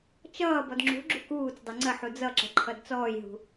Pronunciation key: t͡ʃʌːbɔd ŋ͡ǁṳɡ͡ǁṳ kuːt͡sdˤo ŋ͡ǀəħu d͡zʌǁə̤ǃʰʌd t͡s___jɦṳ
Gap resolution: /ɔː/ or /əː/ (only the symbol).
ɔː